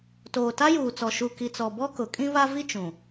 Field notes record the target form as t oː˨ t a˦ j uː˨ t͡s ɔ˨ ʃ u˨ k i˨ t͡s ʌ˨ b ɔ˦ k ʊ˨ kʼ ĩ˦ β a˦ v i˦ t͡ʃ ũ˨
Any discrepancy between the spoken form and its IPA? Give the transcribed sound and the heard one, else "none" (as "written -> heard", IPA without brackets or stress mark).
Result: ʌ˨ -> ɔ˨